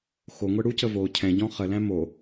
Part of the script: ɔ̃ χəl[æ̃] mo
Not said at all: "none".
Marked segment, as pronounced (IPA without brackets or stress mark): æ̃